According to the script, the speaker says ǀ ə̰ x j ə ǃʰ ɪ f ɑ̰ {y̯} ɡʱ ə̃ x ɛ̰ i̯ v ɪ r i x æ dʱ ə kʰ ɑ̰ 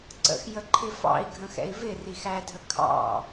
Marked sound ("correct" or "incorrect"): incorrect